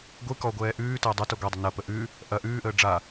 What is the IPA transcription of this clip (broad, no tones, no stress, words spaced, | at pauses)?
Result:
ɡʷɨ kɔɡʷɛː ʔʉːtəː dˤutɐ ɡʷɛdˤə nɐpə ʔʉ | ʔɐ ʔʉːʔəː ɖ͡ʐa